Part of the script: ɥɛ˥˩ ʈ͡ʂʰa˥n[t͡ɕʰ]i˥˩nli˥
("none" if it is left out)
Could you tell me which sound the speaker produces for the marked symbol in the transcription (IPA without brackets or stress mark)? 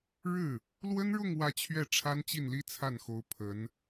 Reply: t͡ɕ